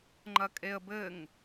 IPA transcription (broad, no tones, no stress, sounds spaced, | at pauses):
ŋ͡ǃ ɐ kʼ e ə̯ b ɘ ŋ